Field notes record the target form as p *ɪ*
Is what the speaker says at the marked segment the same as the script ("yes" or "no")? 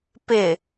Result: yes